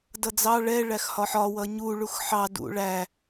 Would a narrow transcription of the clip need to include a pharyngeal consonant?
yes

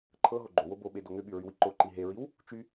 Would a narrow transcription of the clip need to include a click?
yes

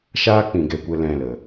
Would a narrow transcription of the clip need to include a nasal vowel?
yes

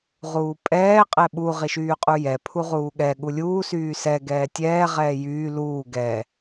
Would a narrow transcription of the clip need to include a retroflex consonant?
no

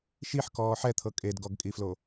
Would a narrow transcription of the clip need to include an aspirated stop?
yes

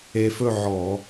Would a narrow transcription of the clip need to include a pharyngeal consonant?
yes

